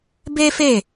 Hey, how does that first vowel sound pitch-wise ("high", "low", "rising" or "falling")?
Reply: high